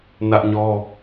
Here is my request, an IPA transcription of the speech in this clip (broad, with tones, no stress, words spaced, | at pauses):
nä˦ʔɲɔ˦